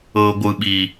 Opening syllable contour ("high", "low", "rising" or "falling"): low